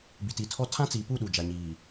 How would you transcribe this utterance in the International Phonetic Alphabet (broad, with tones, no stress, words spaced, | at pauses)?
bi˨ti˨tʰɔ˦ tʰã˦t͡siː˨pu˦˨ ɗu˨d͡ʒa˨ɲiː˨